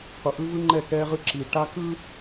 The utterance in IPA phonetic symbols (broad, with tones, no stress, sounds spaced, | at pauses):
q u˨ ʔ ɯ˦ v ɯ˦ ŋ͡ǃ ɛ˦˨ k ɛ˦ ʁ ɯ˦ ǁ i˨ ʈ a˦ k ɯ˦